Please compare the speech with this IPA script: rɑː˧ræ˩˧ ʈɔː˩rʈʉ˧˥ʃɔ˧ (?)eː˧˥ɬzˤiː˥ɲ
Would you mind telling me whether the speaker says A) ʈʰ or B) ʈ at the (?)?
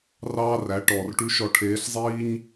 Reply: A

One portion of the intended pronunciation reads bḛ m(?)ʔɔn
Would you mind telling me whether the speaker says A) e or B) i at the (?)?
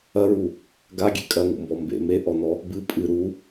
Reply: A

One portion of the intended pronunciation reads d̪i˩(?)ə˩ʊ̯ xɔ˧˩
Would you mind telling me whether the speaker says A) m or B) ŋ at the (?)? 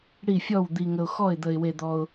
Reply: B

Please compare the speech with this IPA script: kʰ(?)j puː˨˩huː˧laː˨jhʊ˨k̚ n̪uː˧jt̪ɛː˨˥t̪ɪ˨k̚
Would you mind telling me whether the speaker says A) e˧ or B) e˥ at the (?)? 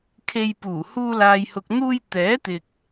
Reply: A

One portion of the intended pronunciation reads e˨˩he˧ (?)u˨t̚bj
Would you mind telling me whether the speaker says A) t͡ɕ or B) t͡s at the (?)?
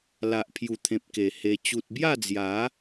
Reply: A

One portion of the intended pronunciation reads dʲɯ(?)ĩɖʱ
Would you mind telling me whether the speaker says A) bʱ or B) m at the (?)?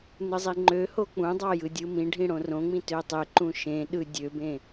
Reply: B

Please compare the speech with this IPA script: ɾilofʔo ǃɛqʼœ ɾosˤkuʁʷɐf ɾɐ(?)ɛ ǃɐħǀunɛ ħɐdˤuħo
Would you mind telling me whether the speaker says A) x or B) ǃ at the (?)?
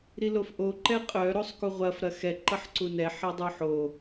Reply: A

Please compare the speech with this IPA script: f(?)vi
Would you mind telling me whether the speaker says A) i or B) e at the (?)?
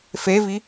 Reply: B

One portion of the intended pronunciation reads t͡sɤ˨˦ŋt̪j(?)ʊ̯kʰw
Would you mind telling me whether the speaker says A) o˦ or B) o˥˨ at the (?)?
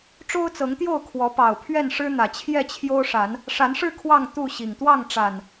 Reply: B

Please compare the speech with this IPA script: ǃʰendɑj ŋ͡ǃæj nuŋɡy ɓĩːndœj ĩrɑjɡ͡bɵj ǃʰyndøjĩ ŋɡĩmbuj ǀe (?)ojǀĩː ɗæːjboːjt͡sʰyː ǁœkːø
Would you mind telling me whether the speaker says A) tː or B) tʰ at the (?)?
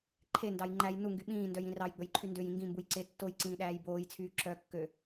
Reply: A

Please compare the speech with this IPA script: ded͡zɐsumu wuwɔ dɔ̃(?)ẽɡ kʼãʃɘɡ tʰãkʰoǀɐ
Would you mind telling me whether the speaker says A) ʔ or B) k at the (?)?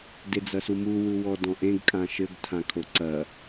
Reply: A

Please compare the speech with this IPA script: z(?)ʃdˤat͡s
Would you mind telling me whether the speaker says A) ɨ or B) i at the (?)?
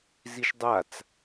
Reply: B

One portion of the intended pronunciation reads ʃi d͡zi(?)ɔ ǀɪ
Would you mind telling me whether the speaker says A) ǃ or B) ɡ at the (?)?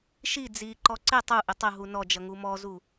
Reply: A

